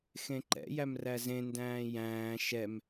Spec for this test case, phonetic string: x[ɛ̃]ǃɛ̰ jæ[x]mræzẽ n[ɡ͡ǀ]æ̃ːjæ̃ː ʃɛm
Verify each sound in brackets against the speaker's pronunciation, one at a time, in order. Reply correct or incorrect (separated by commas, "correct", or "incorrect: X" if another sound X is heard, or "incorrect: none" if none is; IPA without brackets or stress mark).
incorrect: ẽ, incorrect: none, incorrect: d